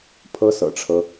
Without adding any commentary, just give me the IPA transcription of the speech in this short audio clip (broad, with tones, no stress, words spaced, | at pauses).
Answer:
pʰɤ˥sɤ̰˨˩ʈ͡ʂʰɤ˦